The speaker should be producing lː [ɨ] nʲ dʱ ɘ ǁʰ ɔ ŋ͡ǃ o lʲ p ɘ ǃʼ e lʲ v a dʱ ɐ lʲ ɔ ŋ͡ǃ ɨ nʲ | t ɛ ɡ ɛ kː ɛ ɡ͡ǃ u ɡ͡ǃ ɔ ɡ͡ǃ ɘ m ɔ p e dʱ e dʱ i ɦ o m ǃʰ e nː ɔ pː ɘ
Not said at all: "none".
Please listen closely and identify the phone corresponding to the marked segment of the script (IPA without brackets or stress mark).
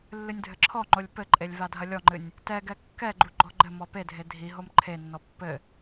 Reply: ɨ